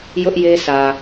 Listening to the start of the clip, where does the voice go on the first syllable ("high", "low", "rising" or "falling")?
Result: high